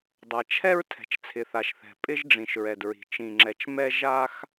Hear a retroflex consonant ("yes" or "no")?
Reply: yes